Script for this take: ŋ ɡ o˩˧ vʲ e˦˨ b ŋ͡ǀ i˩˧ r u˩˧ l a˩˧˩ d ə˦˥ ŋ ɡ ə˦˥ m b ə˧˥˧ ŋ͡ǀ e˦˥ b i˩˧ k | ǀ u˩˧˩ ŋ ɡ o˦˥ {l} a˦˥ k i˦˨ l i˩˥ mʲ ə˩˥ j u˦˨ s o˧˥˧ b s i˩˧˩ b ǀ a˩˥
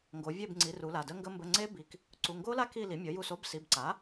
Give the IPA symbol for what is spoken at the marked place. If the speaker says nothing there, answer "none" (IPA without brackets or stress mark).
l